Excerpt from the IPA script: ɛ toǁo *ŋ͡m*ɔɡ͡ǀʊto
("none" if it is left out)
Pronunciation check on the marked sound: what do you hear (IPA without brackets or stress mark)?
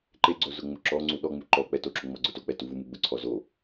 ŋ͡m